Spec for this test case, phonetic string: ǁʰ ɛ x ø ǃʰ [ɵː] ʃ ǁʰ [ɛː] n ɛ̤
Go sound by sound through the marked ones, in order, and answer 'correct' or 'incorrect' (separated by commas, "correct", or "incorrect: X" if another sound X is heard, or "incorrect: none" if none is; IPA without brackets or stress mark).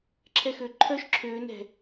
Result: incorrect: œː, incorrect: øː